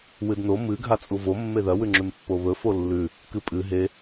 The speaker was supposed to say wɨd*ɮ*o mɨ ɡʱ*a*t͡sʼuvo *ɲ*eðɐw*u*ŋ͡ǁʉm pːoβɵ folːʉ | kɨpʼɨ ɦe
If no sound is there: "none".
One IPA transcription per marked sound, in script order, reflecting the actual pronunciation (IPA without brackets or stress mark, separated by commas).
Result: n, a, mː, ʉ